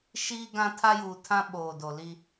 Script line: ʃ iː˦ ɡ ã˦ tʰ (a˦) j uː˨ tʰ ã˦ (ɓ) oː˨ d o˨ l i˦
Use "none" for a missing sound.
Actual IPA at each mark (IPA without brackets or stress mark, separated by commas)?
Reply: a˦, ɓ